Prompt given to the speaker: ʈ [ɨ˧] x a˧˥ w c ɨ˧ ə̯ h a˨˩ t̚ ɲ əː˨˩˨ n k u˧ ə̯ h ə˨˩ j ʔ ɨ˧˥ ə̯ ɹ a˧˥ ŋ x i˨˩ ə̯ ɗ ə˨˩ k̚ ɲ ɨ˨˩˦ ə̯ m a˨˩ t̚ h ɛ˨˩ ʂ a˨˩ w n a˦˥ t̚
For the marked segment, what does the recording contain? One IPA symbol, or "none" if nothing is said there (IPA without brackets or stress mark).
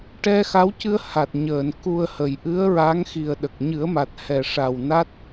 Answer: ɛ˧